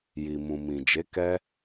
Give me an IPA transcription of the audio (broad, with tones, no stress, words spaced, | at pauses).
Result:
ji˨ mũ˨mĩ˨d͡ʒe˨˦ kɛ˦